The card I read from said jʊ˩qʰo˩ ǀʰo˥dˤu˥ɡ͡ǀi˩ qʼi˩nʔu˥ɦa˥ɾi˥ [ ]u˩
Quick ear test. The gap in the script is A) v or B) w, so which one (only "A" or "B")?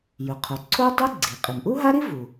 A